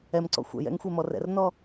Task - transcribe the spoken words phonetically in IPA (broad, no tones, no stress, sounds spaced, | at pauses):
ɛ m ǀ ɔ̰ xʷ ɛ̰ j ɛ̰ ŋ xʷ ɛ m ɔ r ɛ̰ r n ɔ